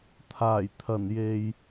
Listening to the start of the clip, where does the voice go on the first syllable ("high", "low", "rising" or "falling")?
low